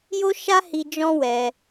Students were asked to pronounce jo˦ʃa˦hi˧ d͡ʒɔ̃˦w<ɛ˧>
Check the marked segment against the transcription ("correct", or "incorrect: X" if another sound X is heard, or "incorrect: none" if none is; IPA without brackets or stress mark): correct